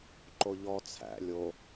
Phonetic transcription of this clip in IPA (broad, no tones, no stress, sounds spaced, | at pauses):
ǃ o ʎ ɔ t͡sʰ æ̰ lʲ o